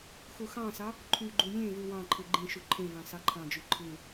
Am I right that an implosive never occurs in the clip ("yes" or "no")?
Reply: yes